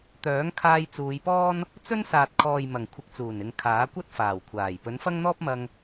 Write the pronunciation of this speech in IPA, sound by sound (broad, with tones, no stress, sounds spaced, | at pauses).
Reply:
t̪ œː˨˥ ŋ kʰ aː˧ j t͡s uː˨˧ j p ɔː˥ n | t͡s ɵ˥ n s aː˨ t̚ kʰ ɔː˨ j m ɐ˨˩ ŋ kʷʰ ɪ˨ k̚ t͡s uː˨˩ n ɪ˨ ŋ kʰ aː˨˥ kʷ ɐ˥ t̚ f aː˨˩ w kʷʰ aː˨˩ j p ɵ˨˥ n f ɐ˥ ŋ n̪ ɔː˥ p̚ m ɐ˧ ŋ